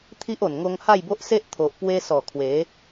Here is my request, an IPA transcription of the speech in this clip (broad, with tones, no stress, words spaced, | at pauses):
t̪ʰi˦ʔo˨˩n ŋo˧ŋha˥˧jbo˦ʔse˦ʔ t̪ʰo˨ʔpwe˧sɔ˨˩ kʰwe˨˦